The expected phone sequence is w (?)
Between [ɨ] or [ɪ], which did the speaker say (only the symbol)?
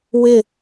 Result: ɪ